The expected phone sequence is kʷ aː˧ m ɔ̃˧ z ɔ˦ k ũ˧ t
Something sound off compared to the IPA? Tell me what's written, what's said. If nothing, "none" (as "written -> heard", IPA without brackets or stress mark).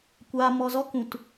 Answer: ɔ̃˧ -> ɔ˧